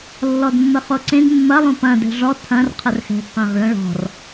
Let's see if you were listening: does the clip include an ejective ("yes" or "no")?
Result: no